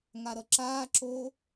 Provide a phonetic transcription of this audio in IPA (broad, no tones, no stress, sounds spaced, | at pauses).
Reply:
ŋ a ɾ ʌ ǁ aː ǁ oː